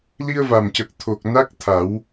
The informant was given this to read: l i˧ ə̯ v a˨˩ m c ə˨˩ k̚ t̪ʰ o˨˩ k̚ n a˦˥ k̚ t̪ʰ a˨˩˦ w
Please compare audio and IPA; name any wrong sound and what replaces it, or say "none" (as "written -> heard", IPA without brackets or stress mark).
none